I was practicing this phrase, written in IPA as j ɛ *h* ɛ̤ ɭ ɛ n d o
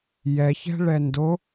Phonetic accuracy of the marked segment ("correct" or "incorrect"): incorrect